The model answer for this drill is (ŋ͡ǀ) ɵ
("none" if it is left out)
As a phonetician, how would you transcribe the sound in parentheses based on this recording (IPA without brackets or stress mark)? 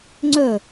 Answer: ŋ͡ǀ